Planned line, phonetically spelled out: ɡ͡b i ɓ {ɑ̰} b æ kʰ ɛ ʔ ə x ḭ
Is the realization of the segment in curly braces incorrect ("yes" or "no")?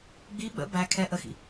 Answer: yes